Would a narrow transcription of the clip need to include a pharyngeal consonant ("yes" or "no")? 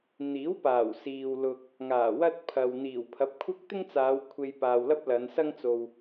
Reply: no